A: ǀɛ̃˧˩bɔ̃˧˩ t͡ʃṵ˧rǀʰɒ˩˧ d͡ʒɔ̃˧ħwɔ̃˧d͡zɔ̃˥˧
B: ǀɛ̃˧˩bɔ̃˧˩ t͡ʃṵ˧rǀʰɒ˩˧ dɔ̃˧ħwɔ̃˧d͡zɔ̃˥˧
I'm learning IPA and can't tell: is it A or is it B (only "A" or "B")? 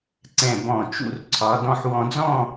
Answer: B